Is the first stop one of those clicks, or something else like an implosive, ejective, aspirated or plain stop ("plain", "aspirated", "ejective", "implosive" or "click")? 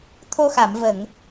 aspirated